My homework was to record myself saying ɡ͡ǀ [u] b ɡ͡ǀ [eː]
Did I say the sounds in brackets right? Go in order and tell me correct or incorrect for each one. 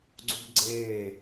correct, correct

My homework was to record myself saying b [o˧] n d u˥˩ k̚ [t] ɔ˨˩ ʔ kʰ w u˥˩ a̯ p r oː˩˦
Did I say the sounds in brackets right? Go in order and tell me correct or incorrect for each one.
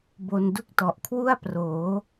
correct, correct

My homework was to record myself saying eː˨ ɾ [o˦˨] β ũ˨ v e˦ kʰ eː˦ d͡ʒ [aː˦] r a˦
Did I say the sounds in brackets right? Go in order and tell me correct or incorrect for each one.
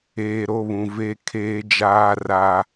correct, correct

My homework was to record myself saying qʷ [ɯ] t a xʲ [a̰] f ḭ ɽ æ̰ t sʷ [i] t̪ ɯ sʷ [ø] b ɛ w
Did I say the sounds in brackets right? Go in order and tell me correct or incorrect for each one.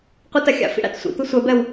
correct, correct, incorrect: ḭ, incorrect: ɛ

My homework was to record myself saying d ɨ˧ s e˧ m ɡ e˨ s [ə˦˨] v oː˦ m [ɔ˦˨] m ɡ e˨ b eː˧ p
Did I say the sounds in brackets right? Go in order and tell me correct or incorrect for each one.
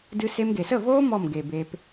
correct, correct

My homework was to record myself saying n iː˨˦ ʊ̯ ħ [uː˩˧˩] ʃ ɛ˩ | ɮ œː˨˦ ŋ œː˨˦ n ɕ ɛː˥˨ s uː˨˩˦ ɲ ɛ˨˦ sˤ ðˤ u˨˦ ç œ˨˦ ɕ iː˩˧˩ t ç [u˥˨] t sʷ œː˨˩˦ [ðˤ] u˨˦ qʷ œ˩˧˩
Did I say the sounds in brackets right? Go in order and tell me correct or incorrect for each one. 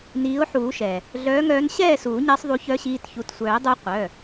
incorrect: uː˨˩˦, incorrect: u˩˧˩, incorrect: dˤ

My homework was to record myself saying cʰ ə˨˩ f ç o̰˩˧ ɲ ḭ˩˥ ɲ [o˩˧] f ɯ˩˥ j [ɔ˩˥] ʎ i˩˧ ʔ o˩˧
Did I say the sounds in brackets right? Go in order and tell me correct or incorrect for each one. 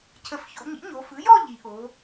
correct, incorrect: ɔ˥˧

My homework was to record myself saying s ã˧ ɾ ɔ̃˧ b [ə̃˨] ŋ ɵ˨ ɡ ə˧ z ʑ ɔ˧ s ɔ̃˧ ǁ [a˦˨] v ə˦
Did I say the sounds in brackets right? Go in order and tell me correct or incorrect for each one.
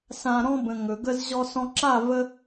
correct, correct

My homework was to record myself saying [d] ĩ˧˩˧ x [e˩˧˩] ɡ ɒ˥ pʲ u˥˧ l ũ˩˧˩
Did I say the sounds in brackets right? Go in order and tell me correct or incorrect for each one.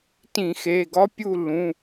incorrect: t, correct

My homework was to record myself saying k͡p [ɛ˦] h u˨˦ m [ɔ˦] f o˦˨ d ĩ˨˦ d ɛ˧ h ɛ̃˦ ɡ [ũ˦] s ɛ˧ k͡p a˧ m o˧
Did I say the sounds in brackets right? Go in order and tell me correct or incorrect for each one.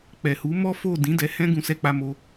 incorrect: ɛ˨, correct, incorrect: ũ˧

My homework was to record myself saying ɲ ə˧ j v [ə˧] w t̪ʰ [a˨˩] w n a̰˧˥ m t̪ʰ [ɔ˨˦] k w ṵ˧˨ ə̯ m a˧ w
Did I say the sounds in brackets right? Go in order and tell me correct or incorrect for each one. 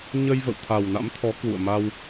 incorrect: ə̰˧˨, correct, correct

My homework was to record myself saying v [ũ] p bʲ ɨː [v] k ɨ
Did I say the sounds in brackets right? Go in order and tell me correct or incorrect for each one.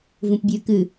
correct, incorrect: none

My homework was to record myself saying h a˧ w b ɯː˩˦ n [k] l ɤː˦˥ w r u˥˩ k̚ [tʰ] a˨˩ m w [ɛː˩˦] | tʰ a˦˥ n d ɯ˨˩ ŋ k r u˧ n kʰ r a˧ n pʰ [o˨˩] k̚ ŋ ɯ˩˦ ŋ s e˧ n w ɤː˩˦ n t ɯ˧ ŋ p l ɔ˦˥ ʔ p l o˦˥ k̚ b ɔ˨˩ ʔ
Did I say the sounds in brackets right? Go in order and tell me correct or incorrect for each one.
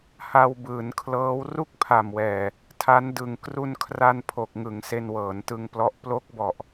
incorrect: kʰ, incorrect: pʰ, incorrect: ɛː˨˩, correct

